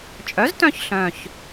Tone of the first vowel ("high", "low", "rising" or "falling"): rising